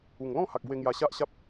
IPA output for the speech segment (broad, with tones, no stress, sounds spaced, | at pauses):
u˨˩ ŋ l ɔ̃˥˧ h a˨ k̚ b w e˧ ŋ j a˧ ɕ a˦ ʔ ɕ a˦ p̚